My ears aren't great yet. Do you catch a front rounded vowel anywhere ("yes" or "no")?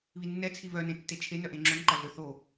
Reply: yes